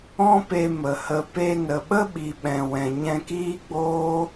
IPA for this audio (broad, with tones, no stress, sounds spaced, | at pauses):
ɔ̃˦ p e˧ m ə˨ h ə˨ p e˧ n ə˨ ɓ ə˦ ɓ i˨ ɓ ɛ̃˨ w ɛ̃˨ ɲ ɛ̃˧ k iː˦ ɡ͡b oː˦